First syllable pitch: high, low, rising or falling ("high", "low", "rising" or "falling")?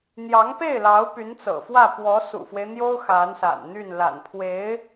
rising